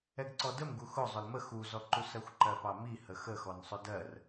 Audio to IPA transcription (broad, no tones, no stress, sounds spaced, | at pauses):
ɛ ɡ ǀ ɔ d ə m ɡ u x ʊ zˤ ʊ l m ə x u z ɔ ǃ u s ɜ xʷ ǃ ɜ p ɑ m i h ə x ə x ɔ n sˤ ʊ d ɜ r